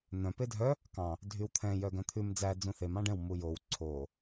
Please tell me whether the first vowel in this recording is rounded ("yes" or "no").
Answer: yes